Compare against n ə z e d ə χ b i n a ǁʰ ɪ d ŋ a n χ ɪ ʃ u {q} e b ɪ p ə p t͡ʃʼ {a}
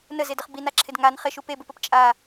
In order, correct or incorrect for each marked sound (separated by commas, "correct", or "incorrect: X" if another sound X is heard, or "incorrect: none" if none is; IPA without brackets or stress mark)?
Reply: incorrect: p, correct